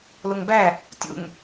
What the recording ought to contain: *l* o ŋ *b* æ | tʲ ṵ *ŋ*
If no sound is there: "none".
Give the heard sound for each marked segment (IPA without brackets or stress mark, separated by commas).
l, b, ŋ